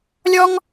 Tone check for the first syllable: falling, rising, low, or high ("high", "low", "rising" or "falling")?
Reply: high